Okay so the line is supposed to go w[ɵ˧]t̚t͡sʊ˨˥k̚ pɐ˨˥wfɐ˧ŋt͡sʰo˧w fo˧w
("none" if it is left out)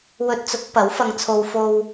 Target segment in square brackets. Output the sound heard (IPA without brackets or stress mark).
ɵ˧